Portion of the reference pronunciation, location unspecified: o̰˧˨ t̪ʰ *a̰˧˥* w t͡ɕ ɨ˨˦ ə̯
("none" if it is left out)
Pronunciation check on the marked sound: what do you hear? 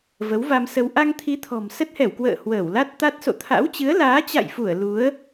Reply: a̰˧˥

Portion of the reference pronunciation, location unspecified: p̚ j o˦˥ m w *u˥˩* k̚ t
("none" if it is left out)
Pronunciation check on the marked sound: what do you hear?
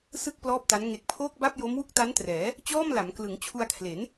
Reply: u˥˩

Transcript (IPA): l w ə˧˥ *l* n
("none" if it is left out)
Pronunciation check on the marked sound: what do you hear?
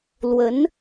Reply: none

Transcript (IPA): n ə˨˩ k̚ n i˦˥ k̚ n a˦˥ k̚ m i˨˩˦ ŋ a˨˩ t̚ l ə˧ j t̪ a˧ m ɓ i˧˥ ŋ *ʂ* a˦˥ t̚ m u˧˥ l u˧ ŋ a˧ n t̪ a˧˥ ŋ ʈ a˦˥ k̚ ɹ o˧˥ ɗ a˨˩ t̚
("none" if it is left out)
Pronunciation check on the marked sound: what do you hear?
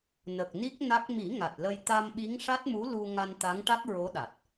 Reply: ʂ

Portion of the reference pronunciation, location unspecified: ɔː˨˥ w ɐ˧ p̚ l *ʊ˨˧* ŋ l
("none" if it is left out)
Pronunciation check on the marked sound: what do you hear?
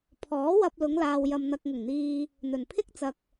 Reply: ʊ˨˧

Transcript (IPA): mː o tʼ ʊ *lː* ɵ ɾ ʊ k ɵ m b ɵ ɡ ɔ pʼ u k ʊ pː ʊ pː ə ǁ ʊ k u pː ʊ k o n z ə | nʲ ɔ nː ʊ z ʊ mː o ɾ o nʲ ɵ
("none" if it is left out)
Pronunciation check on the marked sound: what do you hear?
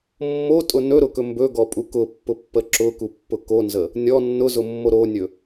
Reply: n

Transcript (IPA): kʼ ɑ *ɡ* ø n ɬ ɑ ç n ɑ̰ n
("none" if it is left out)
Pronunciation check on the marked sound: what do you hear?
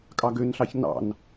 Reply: ɡ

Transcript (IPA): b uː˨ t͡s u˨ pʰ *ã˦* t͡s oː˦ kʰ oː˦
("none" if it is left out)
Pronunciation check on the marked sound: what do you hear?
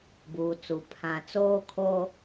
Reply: ã˦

